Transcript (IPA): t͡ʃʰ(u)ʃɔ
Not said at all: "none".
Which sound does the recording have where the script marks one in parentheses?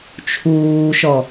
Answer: uː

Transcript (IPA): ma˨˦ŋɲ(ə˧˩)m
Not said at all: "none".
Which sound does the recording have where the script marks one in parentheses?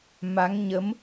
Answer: ə˨˦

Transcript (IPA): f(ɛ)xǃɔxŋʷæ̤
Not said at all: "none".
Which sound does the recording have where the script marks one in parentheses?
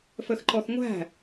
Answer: ə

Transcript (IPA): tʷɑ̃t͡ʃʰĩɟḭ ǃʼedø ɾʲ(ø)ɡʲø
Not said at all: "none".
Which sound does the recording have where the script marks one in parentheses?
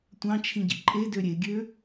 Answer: e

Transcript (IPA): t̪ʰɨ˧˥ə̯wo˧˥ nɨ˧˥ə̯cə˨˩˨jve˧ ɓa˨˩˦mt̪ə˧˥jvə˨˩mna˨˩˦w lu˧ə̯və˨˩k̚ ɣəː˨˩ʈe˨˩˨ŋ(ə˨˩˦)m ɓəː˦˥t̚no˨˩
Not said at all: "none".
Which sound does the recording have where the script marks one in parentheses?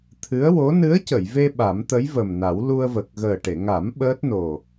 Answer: a˨˩˦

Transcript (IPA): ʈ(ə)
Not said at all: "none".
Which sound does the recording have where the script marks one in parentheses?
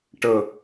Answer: ə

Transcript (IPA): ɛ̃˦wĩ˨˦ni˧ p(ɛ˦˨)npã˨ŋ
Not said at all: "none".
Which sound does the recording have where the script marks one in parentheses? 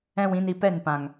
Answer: ɛ˦˨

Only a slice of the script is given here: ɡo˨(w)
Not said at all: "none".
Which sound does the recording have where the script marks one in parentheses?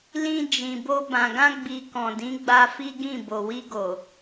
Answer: none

